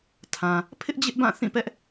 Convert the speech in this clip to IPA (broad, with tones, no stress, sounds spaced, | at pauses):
tʰ ã˨ | pʰ ɪ˦ ʔ d͡ʑ ɪ˦ ʔ b ã˦˨ θ ĩ˦˨ p ɛ˦ ʔ